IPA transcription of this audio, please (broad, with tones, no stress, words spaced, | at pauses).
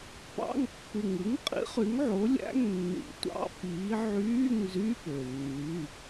pɑ̰˧˥˧ŋ pːɯ˨˩ŋɯ˨˥ŋqʼḭ˨˥ χy˨˥ŋʕo˨˥lʲæ̰˧˥˧ŋ nːḭ˨˩tʷɑ̰˧˥˧ piː˨˥ ʕyː˧˥˧ŋ zy˧˥˧pø˨˩ nːy˧˥˧